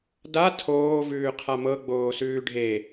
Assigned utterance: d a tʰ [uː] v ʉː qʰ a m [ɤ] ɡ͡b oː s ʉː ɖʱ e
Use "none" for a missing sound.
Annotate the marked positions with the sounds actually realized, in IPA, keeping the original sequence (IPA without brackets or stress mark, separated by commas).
oː, ɤ